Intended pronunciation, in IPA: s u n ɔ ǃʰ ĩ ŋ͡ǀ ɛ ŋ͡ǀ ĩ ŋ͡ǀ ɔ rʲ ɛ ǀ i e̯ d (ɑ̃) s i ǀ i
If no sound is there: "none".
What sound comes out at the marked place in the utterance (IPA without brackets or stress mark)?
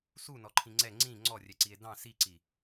ɑ̃